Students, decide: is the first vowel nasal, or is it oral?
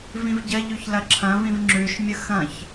nasal